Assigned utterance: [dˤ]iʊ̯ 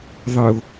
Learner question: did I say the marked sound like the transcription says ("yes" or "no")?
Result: no